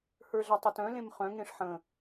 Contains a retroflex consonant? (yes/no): yes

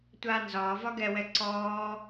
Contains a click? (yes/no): yes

